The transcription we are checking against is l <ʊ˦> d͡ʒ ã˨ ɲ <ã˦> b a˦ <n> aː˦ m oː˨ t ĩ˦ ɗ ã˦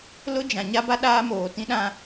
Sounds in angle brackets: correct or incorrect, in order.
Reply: correct, incorrect, incorrect

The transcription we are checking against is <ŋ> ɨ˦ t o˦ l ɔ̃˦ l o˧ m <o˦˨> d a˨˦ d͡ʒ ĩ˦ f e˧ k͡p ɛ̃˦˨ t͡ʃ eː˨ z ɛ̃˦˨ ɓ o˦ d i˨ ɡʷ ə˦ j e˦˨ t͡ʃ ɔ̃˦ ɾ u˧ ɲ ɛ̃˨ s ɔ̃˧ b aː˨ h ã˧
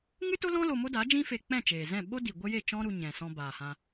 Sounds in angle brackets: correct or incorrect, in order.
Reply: correct, incorrect

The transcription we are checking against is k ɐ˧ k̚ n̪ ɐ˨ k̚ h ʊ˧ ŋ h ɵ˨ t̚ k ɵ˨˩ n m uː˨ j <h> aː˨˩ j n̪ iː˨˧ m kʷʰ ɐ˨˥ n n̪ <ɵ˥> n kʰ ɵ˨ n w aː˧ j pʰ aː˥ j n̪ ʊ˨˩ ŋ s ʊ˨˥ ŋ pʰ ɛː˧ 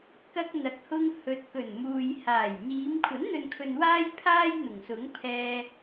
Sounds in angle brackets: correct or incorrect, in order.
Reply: correct, incorrect

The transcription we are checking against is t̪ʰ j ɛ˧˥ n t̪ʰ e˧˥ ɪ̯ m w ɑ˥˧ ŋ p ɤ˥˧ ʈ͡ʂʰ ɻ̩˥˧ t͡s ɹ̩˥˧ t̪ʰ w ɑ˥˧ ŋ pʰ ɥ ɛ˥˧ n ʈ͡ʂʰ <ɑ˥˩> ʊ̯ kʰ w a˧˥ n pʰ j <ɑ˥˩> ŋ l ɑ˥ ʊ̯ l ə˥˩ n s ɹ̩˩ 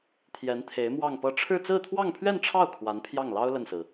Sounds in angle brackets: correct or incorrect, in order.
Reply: correct, correct

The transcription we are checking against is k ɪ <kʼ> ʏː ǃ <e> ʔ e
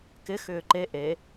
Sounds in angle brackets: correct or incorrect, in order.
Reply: incorrect, correct

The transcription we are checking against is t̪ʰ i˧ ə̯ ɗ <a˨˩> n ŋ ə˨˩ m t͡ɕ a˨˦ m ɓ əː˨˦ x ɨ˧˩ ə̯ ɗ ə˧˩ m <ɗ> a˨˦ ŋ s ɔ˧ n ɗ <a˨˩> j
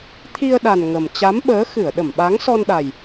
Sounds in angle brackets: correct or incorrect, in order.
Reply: correct, incorrect, correct

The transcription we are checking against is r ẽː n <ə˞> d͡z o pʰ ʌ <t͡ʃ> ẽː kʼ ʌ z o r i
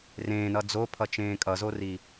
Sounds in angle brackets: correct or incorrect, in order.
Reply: incorrect, correct

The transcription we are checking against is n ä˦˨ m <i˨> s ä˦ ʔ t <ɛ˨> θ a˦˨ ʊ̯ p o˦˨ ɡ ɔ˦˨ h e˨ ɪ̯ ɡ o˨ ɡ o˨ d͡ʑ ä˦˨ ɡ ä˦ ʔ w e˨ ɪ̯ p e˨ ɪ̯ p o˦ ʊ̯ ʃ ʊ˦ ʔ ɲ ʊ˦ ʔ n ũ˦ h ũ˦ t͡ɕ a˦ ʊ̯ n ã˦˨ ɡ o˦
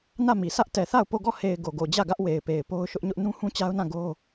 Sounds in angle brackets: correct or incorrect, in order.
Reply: correct, correct

